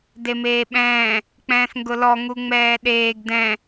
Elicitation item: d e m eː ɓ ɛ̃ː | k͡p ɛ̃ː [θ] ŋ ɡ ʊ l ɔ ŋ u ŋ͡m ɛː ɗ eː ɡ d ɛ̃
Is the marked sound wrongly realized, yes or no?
no